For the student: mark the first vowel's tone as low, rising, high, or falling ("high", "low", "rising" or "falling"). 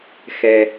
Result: low